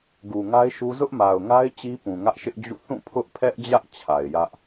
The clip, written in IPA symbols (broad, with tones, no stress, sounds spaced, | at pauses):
ɡ u˨ ŋ a˦ ɪ̯ ʃ u˦ z ʊ˦ ʔ m a˨ ʊ̯ ŋ a˦ ɪ̯ t͡ɕ i˦ p ũ˨ ŋ ä˦ ʔ ʃ ɪ˦ ʔ d͡ʑ ṵ˦˨ θ ũ˦˨ pʰ ʊ˦ ʔ pʰ ɛ˦ ʔ d͡ʑ ä˦ ʔ t͡ɕʰ a˨ ɪ̯ j ä˦ ʔ